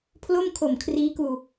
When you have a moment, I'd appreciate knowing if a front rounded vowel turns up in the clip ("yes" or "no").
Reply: no